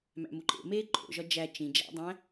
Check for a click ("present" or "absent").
present